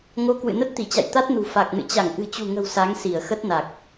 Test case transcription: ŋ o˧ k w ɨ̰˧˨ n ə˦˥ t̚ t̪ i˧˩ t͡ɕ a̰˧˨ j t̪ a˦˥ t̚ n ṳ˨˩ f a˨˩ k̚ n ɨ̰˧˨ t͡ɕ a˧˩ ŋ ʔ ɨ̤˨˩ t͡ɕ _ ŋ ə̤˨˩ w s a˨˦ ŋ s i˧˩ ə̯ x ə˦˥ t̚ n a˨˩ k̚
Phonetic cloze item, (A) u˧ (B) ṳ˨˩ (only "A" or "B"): B